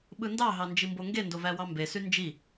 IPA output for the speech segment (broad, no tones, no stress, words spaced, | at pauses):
ɓɯndɑ ɦɑnd͡ʒimboŋɡe ndovæwɑmbe synd͡ʒi